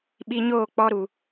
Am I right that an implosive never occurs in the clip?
no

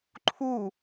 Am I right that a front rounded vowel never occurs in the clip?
yes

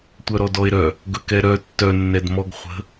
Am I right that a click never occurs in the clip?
yes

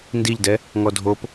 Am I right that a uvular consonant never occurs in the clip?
yes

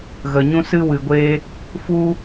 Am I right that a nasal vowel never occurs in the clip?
no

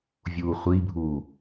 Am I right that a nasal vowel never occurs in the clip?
yes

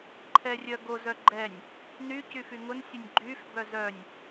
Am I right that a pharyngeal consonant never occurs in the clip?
yes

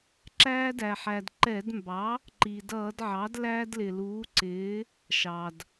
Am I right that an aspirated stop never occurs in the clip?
yes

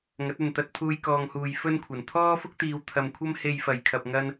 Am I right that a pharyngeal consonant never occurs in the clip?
yes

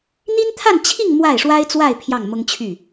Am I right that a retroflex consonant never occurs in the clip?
no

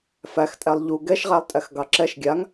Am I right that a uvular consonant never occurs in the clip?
no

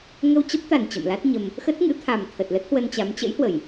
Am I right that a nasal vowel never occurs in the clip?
yes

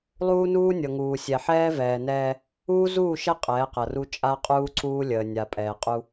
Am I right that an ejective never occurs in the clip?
no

